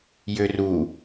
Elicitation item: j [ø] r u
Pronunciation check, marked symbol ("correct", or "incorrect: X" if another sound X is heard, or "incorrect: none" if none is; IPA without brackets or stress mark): correct